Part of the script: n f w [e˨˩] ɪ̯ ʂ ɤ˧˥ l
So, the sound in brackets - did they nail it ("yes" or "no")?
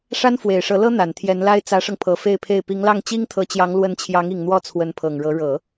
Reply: yes